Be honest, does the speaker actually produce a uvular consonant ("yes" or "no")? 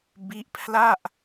no